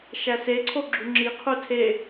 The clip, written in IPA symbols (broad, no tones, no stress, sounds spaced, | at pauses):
ʃ æ s e ǀʰ o ɡ͡ǁ u ŋ͡ǁ i qʰ u tʰ e